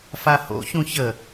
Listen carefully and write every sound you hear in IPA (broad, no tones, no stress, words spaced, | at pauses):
faho̰ çũçə